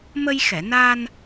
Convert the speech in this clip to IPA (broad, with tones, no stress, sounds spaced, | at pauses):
m ə˧ j x ɛ˨˩˨ n a˧ n